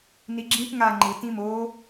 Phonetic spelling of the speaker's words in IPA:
n i ɡ͡ǁ ĩ p ŋ a ŋ͡ǃ ɯ t ĩ m o

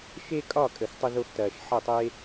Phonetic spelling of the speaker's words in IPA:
ʃ e˦ kʼ ɒ˦˨ kʼ ə˨ x tˤ ə˧ ð o˧ x t ɐː˨ ʃ ħ ɐ˦˨ tˤ e˦

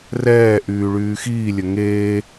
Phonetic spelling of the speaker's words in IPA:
r ɛː ʔ yː ɭ yː x iː lʲ ə ŋ eː

